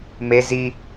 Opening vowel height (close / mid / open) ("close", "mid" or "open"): mid